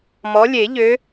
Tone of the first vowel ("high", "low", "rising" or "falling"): rising